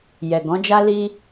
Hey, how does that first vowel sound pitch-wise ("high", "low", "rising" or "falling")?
low